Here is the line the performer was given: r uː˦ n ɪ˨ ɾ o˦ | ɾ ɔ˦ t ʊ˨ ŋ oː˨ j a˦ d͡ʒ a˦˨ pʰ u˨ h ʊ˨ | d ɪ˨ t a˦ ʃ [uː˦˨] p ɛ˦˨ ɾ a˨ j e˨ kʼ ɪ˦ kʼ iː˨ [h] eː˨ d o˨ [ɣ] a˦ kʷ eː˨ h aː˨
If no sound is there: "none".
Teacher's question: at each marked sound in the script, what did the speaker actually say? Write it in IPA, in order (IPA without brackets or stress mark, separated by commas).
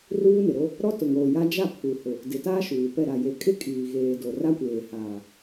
uː˨, ɣ, r